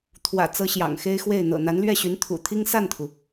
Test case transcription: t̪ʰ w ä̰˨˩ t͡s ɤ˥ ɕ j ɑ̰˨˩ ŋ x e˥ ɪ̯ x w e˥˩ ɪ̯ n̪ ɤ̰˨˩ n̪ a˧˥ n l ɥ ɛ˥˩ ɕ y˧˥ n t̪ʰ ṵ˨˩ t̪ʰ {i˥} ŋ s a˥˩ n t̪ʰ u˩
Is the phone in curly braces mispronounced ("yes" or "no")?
no